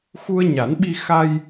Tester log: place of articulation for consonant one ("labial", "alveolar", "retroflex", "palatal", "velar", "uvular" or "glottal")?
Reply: velar